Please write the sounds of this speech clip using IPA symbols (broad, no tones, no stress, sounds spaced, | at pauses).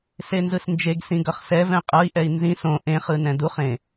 s e n z ɯ s n d͡ʒ e ɡ s ĩ ɡ ʌ χ s ɛ v ɛ̃ qʼ ʌ i̯ ʔ ɛ i̯ n z ĩ s õ ʔ ẽ χ ɯ n ɛ̃ d u χ ẽ